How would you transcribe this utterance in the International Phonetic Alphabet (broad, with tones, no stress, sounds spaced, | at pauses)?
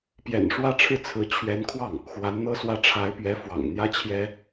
p j ɛ̰˨˩ n ʂ w ä˥ ʈ͡ʂʰ ɻ̩˥˩ t͡sʰ ɹ̩˧˥ t͡ɕʰ ɥ ɛ˧˥ n kʰ w ɑ˥˩ ŋ | x w a˧˥ n n̪ ɤ˥ s w ä˥ ʈ͡ʂʰ a˧˥ ɪ̯ p ɥ ɛ˧˥ f w ɑ̰˨˩ ŋ n̪ j ä˥ t͡ɕʰ j ɛ˥